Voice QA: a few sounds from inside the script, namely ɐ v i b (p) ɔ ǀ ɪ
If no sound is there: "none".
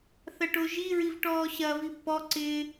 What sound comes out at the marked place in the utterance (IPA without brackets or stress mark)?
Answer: p